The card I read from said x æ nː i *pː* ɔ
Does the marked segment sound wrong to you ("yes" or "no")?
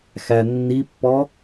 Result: no